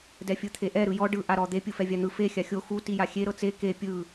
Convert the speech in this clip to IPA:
d ɛ fʲ ɯ t̪ʰ e ʔ ɛ ɾ ɯ j ɔ ɖ ɯ ʔ a ɾ ɔ d̪ e pʲ ɯ f ɛ vʲ a n̪ ɯ f e xʲ a xʲ o x u t i j a xʲ e ɾ ɤ t͡s e k e pʲ ɯ

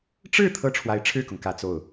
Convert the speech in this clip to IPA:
ʈ͡ʂ ɻ̩˥˧ t̪ʰ ɤ˥˩ ʈ͡ʂʰ w a˧˥ ɪ̯ ʈ͡ʂʰ ɻ̩˥˩ k ʊ˩ ŋ k ä˥˧ t͡s o˥˩ ʊ̯

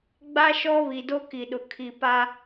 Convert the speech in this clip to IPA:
ɡ͡b a˦ ʃ ɔ˦ β i˨ d o˦ k i˨ ɗ ʊ˨ kʰ i˨ p a˦

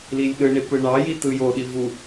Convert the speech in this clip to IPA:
l i lʲ ɗ ɯ ɳ i p ɯ ɳ ɑ j i t ɯ j o ɗ i v u

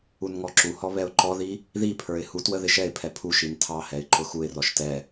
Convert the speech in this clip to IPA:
u n ŋ ɔ ǁ u h ɔ β ɛ ʊ̯ ǃ ɔ ð i | ð i pʰ ə˞ ɪ̯ h u t w ə ð ɪ ʃ ɛ ɪ̯ pʰ ɛ pʰ u ʃ i n tʰ ɑ h ɛ ɪ̯ ǃ ʊ x u ɪ̯ r ɔ ʃ t ɛ

